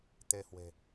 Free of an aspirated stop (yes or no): yes